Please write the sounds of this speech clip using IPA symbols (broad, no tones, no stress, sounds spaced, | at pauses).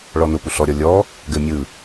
ɭ ɔ n ʊ p u ɬ ɔ ɾʲ ɔ lʲ ɔ | ɡ ɘ mʲ ɯ